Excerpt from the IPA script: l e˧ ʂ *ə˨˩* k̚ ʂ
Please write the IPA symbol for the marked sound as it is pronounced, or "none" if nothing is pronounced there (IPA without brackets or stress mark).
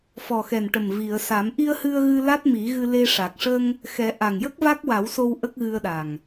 a˨˩